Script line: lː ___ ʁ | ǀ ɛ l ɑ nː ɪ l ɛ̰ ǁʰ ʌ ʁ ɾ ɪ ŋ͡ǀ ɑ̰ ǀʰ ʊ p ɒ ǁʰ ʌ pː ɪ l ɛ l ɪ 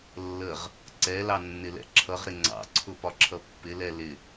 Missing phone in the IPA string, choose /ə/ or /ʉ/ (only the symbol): ə